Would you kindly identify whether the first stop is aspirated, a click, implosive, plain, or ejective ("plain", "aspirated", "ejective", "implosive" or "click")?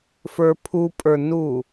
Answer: aspirated